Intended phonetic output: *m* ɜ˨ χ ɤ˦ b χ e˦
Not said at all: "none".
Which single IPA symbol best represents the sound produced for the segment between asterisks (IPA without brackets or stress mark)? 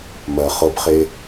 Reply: m